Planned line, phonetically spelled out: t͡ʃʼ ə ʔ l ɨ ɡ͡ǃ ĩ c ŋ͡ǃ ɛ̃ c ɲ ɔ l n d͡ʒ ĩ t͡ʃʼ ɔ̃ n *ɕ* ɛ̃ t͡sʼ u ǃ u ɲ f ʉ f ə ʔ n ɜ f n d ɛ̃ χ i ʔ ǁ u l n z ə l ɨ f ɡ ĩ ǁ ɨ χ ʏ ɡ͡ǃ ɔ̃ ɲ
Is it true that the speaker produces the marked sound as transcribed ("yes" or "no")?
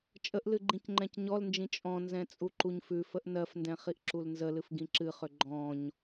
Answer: no